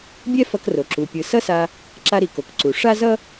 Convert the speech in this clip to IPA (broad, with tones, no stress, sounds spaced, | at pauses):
bʲ ɛ˥ f ʌ˧ k r o˩ ǁ u˩ pʲ ɯ˩ s ʌ˥ s a˧ | ǁ a˧ ɾ i˩ k o˩ k ǀ u˩ ʂ a˥ z ʌ˥